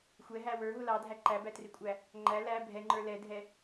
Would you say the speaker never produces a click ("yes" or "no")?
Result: no